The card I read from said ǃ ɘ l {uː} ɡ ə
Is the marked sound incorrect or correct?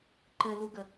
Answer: incorrect